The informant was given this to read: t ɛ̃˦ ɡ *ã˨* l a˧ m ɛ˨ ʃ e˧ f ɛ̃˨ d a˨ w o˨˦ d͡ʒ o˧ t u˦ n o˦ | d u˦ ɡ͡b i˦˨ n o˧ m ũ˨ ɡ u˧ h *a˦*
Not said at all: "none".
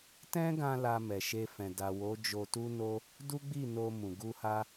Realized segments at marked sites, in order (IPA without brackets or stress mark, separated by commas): ã˧, a˦